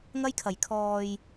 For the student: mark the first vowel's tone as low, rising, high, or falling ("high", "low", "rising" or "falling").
high